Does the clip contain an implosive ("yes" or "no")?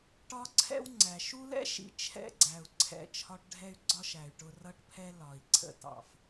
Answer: no